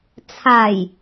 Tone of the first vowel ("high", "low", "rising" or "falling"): low